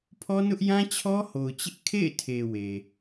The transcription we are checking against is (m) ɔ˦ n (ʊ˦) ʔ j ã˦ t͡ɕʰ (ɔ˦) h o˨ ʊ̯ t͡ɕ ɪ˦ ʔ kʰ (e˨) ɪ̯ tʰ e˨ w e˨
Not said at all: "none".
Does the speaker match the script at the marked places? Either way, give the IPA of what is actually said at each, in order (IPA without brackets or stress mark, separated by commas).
pʰ, ʊ˦, ɔ˦, ḛ˦˨